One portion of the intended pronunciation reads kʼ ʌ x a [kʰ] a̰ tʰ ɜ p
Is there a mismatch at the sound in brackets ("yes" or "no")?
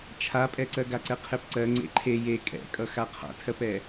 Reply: yes